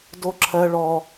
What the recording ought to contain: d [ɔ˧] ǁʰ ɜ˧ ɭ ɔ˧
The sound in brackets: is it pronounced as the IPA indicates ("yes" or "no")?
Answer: no